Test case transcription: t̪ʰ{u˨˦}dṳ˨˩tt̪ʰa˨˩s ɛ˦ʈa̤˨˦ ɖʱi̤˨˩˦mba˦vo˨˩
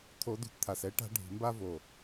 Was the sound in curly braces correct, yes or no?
no